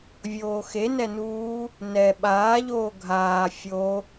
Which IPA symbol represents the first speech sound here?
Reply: vʲ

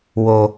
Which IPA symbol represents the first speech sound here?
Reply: w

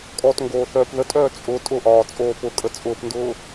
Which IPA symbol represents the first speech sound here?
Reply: kʼ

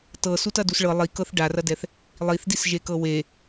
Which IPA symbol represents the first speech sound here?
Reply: t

